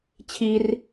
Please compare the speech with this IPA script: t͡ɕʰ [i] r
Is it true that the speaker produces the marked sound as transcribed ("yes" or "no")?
yes